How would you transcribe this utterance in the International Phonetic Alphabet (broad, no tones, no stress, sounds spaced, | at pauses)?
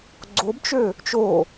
ɡ͡ǀ o b t͡ʃ ø | t͡ʃ o